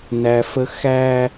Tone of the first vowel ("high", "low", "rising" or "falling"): low